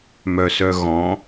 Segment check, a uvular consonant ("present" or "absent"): absent